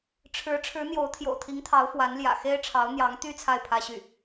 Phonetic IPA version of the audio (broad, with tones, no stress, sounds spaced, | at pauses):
ʈ͡ʂʰ ɻ̩˧˥ ʈ͡ʂʰ ɻ̩˧˥ n̪ j o˧˥ ʊ̯ t̪ʰ j o̰˨˩ ʊ̯ t̪ʰ i˧˥ ŋ t̪ʰ ɑ˧˥ ʊ̯ f w a˧˥ n l j ä̰˨˩ x e˥ ɪ̯ ʈ͡ʂʰ ɑ˧˥ ʊ̯ n̪ j ɑ˧˥ ŋ t̪ y˥ t͡sʰ a˥˩ ɪ̯ pʰ ä˥ ɕ y˥˩